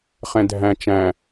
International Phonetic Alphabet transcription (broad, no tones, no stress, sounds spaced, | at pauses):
χ ɛ̃ dʱ æ̃ t͡ʃ æ̃